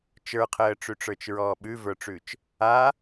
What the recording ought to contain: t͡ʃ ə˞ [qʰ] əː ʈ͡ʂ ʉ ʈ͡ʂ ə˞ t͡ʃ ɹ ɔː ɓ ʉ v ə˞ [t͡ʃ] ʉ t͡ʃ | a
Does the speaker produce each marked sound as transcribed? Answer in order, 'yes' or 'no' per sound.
yes, no

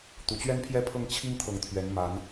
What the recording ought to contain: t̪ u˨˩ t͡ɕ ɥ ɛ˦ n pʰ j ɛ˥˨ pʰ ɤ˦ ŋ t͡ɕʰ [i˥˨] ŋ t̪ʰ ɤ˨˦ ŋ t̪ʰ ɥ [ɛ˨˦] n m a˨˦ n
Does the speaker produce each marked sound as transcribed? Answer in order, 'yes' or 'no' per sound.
no, yes

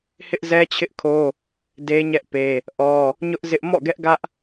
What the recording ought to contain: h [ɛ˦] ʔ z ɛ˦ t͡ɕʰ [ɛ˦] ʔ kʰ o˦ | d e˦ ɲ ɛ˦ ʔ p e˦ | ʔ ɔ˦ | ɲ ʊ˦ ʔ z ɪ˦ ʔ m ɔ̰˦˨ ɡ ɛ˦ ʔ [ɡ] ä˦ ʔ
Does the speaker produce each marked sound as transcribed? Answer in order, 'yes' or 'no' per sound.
no, no, yes

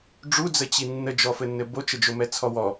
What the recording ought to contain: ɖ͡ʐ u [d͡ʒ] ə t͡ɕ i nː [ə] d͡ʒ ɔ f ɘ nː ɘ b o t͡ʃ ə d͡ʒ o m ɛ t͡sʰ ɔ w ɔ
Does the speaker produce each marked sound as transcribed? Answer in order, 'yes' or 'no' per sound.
no, yes

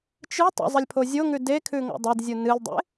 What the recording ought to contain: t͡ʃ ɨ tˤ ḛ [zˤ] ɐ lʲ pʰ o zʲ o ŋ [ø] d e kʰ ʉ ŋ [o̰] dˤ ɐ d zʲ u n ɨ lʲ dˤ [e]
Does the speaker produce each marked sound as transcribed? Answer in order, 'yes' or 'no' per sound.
yes, no, yes, no

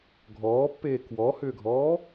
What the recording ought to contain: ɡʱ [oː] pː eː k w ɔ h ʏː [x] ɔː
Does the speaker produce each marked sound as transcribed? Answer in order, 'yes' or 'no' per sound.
no, no

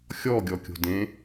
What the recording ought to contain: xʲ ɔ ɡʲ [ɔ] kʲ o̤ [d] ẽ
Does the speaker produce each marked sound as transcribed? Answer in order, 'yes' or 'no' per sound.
yes, yes

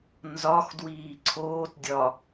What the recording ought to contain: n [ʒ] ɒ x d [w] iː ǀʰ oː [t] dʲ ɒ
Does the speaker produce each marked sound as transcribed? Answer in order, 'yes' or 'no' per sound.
no, yes, yes

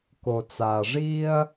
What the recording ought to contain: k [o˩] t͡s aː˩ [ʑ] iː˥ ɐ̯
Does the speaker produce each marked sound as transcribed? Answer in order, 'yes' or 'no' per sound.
yes, no

